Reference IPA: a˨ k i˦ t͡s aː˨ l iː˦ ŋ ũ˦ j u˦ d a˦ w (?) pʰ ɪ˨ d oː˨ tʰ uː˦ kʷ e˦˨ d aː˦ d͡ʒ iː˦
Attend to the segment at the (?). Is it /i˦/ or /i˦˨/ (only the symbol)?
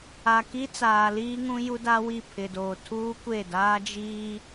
i˦˨